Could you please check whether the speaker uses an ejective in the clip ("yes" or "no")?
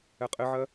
yes